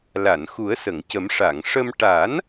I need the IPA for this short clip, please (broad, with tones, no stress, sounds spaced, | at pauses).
l a˨˩˨ n x u˨˩˦ ə̯ s ə˨˩˨ ŋ c ə˨˩˦ m ʂ a˨˩˨ ŋ ʂ ə˧ m ʈ a˨˩˦ n